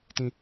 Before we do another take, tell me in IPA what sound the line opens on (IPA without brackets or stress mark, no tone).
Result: t